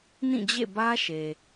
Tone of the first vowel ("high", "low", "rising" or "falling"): falling